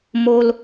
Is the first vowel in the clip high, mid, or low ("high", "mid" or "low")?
mid